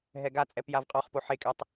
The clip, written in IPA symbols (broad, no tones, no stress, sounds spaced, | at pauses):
ɦ ɛ ɡ a t͡sʼ ɛ p j a v qʼ ɔ χ p o ħ e kʼ ɛ tˤ